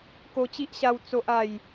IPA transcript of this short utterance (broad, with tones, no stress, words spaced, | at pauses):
ko˧t͡ɕi˦ʔɕa˧w t͡so˦ʔa˥˧j